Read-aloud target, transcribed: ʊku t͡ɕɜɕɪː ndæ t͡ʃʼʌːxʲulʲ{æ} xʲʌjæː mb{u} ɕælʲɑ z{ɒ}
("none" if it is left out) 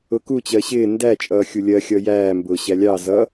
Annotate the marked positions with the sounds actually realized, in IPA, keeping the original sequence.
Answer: ɜ, ʊ, ʌ

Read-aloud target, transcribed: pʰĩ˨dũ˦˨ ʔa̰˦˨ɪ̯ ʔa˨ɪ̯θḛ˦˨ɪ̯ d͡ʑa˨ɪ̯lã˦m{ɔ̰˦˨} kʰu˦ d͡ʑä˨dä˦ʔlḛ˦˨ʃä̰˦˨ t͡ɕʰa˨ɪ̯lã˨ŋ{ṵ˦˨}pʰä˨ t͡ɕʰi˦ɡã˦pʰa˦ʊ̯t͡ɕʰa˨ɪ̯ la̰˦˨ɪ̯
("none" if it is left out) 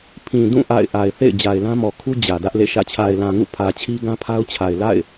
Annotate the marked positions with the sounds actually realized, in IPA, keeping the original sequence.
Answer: ɔ˨, ṵ˦˨

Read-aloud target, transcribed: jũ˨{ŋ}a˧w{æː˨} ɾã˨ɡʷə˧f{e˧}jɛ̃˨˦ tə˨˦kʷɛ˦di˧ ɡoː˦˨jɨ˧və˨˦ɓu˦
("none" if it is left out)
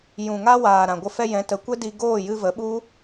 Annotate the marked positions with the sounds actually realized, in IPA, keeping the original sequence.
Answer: ŋ, aː˨, ɛ˧

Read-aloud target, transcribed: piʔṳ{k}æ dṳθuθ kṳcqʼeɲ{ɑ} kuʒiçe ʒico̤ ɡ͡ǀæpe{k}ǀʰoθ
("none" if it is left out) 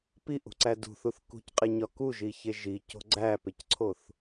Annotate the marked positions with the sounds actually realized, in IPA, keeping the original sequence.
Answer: ǀ, ɒ, c

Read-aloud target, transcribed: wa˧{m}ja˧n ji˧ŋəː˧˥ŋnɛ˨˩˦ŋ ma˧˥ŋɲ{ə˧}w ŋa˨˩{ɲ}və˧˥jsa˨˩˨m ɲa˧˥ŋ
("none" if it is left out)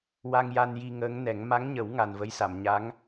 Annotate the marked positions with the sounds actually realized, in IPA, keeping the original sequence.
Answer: ŋ, ə˨˩˦, n

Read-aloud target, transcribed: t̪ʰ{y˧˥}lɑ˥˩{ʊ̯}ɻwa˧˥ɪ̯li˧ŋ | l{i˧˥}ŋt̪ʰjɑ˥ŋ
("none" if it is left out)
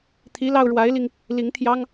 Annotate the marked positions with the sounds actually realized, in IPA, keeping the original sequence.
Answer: i˧˥, ʊ̯, i˧˥

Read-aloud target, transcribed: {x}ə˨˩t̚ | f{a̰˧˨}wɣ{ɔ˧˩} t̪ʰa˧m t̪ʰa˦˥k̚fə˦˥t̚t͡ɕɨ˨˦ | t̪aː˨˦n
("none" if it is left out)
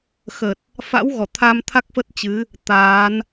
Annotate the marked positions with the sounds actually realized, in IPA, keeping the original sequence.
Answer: x, a̰˧˥, ɔ˧˩

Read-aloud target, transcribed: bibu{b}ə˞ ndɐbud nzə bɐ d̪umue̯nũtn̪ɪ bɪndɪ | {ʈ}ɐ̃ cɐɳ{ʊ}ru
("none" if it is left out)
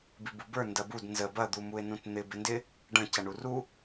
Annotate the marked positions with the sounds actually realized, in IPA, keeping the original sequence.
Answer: b, ɖ, u

